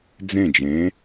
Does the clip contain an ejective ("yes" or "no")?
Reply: no